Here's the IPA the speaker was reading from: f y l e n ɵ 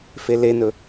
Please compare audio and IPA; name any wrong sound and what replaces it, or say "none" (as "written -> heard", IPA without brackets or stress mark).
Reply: y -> e